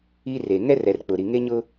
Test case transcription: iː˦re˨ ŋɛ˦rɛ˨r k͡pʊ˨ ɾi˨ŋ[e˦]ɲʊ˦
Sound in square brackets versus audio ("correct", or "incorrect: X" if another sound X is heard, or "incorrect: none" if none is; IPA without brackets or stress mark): correct